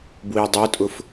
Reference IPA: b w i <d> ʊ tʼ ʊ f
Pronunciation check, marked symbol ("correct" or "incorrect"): incorrect